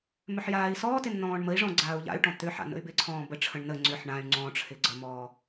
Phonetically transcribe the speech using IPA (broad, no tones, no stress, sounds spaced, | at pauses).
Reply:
m ʏ ħ j aː i̯ s ɔː t ɪ n n̪ ɔ̃ː ɳ m ə i̯ ʐ ɔ̃ ɡ͡ǀ aː u̯ ʎ a̰ y̯ ʈ ɔ̃ t̪ ʏ ħ a̰ n ə̰ y̯ b ɪ ǀʰ ɔ̃ː b ə ʈ͡ʂʰ ə̃ ɳ n ə ŋ͡ǀ ʏ ħ ɳ ã y̯ ŋ͡ǀ ɔ̃ ʈ͡ʂʰ ɪ ɡ͡ǀ ə m ɔː